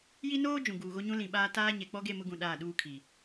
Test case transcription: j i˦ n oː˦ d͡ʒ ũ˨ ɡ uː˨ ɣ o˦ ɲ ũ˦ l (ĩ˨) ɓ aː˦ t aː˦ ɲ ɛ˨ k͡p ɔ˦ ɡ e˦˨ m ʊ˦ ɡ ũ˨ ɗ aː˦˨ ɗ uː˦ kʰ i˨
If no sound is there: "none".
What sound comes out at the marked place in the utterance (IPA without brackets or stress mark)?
ĩ˨